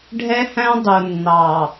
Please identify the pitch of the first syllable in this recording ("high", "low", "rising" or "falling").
high